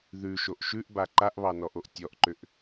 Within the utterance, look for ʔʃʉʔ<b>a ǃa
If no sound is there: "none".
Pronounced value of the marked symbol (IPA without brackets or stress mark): b